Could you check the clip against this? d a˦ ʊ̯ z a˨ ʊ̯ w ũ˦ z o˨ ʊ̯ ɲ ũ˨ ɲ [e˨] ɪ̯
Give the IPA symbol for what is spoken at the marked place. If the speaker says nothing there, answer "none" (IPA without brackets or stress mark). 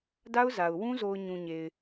e˨